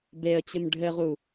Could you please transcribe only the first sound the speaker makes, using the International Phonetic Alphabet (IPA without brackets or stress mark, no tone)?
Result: b